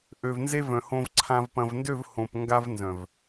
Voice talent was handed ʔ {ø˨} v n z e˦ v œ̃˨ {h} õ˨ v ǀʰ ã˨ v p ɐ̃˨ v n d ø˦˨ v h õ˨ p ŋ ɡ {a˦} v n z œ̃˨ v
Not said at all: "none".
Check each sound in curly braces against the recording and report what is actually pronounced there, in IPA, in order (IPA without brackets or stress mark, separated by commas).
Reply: ø˨, h, a˦